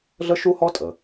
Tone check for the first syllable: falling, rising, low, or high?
high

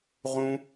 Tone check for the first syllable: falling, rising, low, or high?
high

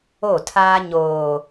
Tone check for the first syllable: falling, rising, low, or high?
falling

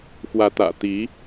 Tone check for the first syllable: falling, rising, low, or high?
rising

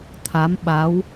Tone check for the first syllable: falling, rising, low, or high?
rising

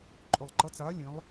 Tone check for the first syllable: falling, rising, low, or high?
low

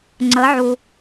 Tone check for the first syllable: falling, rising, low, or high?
rising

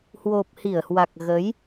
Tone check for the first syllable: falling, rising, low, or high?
low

